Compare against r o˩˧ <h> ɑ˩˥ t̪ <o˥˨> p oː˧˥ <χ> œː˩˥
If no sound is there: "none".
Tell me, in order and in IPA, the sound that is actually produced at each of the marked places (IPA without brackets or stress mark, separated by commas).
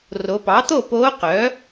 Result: p, o˥˨, q